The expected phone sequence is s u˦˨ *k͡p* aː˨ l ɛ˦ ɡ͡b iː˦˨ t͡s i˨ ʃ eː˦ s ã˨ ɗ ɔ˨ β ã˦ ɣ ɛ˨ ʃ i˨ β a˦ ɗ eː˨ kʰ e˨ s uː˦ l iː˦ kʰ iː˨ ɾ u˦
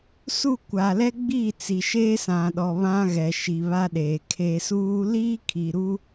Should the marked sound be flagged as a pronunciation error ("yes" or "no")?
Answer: yes